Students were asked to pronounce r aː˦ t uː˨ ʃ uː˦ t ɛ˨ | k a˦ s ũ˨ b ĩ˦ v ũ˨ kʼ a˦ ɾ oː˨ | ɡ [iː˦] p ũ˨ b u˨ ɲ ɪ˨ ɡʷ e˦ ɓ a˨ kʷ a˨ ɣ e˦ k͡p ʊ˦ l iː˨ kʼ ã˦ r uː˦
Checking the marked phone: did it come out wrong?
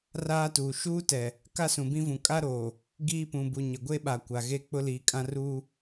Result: no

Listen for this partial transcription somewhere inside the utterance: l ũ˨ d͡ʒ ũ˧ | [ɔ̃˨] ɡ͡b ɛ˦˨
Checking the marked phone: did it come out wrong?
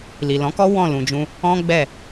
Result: yes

